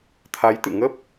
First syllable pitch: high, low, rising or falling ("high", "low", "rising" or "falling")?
rising